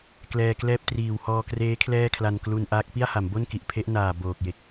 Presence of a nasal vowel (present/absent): absent